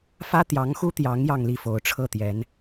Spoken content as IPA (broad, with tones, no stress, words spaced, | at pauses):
fä˥t̪jɑ˧˥ŋxu˥t̪jɑ˧˥ŋ jɑ˥˧ŋli˥˩fo˧˥ʊ̯ ʈ͡ʂʰɤ˥˩t̪jɛ˧˥n